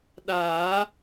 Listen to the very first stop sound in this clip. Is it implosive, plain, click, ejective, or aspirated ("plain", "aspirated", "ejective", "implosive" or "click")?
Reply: implosive